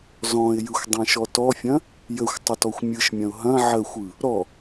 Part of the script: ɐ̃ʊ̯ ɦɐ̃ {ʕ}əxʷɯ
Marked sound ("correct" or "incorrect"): correct